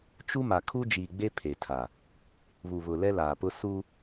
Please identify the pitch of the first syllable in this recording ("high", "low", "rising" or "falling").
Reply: high